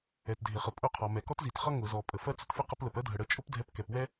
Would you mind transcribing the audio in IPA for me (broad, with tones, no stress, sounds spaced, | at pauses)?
ɛ˩ t dʱ ɪ˩ χ ə˩ pʼ ʊ˧ qʰ ɔ˩ m ɛ˩ k ɔ˥ t z i˩ t χ ʌ˥ ŋ ʊ˩ z ɔ˩ pʼ ə˩ f ɜ˥ t͡s ʊ˧ t f ɪ˥ q ə˧ p l ə˩ p ɜ˥ dʱ ə˩ ɽ ə˧ t͡ʃʼ ʊ˥ p dʱ ɛ˧ p k ɛ˩ p w ɛ˥